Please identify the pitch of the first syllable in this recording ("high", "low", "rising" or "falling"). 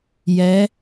rising